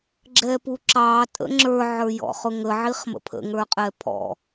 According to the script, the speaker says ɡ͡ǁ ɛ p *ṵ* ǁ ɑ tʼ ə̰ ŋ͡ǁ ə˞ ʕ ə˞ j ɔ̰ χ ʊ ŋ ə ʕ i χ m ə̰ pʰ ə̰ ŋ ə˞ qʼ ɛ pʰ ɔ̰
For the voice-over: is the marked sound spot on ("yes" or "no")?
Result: no